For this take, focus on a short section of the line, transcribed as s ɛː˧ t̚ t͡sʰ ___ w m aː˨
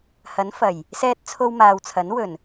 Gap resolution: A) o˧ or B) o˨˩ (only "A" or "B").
A